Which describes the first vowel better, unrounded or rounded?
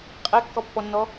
unrounded